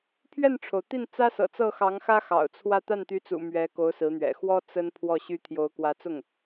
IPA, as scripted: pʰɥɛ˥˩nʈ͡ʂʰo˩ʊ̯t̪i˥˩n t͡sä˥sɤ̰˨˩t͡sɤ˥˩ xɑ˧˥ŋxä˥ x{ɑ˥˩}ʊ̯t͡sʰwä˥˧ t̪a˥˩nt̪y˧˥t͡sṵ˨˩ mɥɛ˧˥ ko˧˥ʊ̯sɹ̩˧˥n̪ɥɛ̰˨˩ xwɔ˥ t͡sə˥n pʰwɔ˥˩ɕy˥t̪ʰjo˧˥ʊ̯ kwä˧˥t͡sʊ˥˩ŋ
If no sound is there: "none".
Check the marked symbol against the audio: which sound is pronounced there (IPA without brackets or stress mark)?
ɑ̰˨˩